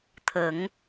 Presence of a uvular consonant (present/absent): absent